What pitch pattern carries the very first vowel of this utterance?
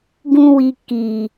high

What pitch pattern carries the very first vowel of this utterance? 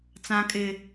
high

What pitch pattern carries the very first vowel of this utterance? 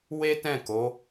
high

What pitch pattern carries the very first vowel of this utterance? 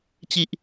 high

